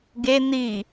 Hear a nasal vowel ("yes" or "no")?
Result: no